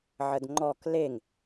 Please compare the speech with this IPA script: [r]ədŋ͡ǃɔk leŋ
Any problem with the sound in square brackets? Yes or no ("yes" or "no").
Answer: yes